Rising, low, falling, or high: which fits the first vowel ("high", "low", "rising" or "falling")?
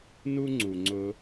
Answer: high